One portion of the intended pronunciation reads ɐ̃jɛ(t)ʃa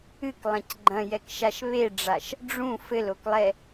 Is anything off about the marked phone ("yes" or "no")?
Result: yes